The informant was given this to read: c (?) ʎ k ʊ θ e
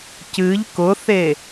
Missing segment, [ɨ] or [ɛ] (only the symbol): ɨ